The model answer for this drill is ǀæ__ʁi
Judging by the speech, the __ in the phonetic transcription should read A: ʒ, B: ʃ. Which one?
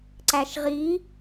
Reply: B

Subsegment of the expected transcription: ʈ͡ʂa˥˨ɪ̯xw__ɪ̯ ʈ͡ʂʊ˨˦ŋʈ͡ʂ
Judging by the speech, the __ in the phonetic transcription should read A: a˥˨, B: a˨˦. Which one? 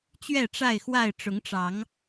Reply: A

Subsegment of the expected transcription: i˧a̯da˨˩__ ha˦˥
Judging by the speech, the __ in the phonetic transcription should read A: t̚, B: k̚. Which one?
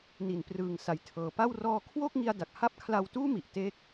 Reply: B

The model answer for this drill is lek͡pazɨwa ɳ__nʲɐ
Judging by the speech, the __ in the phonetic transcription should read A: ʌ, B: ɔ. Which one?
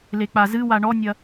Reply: B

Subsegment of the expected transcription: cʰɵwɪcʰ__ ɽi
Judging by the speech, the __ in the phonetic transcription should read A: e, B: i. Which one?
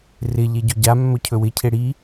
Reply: A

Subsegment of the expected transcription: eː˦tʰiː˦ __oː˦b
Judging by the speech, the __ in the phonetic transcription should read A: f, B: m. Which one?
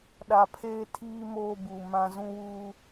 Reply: B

